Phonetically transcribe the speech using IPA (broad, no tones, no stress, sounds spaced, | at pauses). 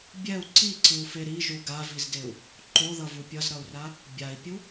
bʲ ɛ u̯ ǀ i ǀ ɯ u̯ f e ɾ i ʒ u ɡ a v i z d e u̯ | ǃ o ð ʌ v u pʲ ʌ z ɾ ʌ u̯ r a | bʲ a i̯ pʲ u